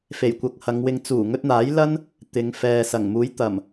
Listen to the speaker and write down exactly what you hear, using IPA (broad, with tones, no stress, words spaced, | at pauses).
fe˨˩jkʷɐ˨˥k̚hɐ˨˧ŋwɪ˧ŋ t͡suː˨˩ŋɵ˧t̚n̪aː˨˥jlɐ˥n | t̪ɪ˨˧ŋ fɛː˨sɐ˨˩ŋ muː˨˥jt̪ɐ˨˩m